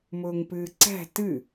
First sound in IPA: m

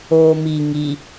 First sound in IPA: oː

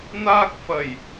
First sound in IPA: n̪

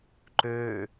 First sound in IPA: ǃ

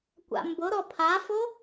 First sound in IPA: kʷ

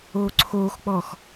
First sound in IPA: oː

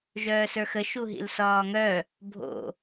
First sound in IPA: ʒ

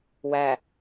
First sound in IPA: w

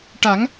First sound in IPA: ʈ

